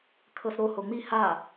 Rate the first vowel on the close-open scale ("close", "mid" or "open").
mid